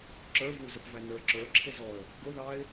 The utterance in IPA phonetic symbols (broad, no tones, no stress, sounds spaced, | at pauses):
ǁ ə˞ v u z ə p v æ n ə˞ ǁ ə˞ ǁʰ ɪ z ɔ ə̯ | ɡ ʊ ð ɑ ɪ̯